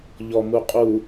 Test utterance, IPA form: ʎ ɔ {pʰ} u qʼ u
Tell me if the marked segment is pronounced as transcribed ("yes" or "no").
no